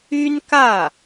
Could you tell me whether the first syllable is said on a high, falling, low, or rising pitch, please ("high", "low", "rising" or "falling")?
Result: high